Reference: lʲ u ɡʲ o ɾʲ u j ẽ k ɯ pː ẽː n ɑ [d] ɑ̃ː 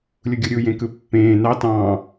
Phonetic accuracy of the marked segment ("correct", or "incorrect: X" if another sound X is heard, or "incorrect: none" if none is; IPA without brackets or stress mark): incorrect: t